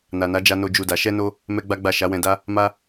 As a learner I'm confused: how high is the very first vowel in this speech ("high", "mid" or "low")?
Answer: low